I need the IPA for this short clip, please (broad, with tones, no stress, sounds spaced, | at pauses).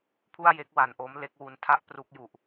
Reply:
pʰ u˥˩ a̯ j e˦˥ k̚ w a˨˩ n ʔ o˦˥ m l e˦˥ k̚ w u˧ n tʰ a˥˩ ʔ p r u˦˥ k̚ j u˨˩ ʔ